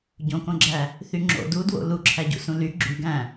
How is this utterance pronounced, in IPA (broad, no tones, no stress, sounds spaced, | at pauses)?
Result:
ɟ õ k õ ɡ͡ǁ æ | θ y ŋ͡ǁ o̰ d u d w o̰ l u ǁʰ æ ɟ ṵ s ũ l y ɡ͡ǁ y ɡ æ̃